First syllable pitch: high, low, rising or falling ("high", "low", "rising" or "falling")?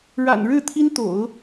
low